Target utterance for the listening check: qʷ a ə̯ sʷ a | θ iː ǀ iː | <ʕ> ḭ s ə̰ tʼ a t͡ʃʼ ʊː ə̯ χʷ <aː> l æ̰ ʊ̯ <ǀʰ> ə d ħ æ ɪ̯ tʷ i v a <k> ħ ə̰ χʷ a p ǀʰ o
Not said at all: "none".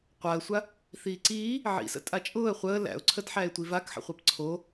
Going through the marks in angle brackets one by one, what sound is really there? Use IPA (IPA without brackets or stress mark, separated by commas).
ʕ, əː, ǀʰ, k